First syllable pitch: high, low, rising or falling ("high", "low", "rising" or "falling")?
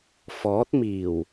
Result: rising